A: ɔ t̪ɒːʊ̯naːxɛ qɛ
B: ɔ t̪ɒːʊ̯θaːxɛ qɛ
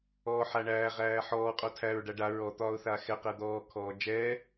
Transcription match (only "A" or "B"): B